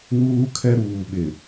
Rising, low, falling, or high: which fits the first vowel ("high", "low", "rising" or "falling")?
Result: high